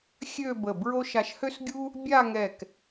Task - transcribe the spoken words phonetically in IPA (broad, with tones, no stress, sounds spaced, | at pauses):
xʲ ø˥˧ b ə˧˩ b ɹ o˥ ʃ a˧ ʃ h ø˥ s ɡʲ u˥ | bʲ a˥˧ ŋ ɛ˧˩ k